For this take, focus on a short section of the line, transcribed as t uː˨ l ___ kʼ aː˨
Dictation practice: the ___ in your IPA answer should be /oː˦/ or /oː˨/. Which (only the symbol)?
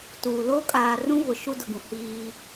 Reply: oː˦